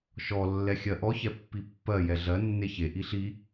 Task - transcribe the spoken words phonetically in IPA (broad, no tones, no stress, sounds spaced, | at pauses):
ʃ ɔ lː ɛ xʲ ɜ ʔ ɔ ç ɛ pː i pː ɜ j ɛ ɮ ɜ nː e ç e ʔ i ɬ i